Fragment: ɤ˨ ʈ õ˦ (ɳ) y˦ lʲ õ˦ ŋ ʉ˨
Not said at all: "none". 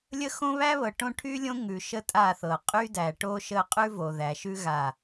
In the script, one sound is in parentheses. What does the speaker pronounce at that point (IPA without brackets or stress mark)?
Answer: ʈʰ